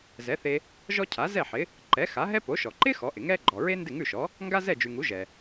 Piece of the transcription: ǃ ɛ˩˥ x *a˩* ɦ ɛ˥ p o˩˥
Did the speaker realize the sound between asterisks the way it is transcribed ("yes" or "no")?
no